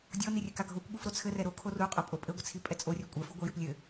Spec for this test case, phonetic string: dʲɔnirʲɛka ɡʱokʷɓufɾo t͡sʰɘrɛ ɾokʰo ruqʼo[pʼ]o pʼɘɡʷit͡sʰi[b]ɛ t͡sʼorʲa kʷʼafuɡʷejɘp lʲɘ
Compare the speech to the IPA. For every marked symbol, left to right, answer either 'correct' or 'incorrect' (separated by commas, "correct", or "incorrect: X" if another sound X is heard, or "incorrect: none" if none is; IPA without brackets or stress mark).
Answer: correct, incorrect: pʼ